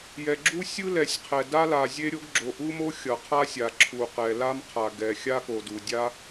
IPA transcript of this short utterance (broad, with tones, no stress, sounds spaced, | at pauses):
j ɛ˩ ɡ͡ǁ u˥ sʲ ɯ˥ l ɛ˩ sʲ qʰ ɛ˩ d a˥ l a˩ zʲ e˥ ɾʲ o˥ ɡ ɡ͡ǁ o˩ ʔ u˥ m o˥ xʲ ʌ˩ qʰ a˥ sʲ a˩ ǁʰ u˩ q ɛ˩ l a˥ m qʰ a˩ ɡ ɛ˩ xʲ a˥ k o˩ d u˩ dʲ a˥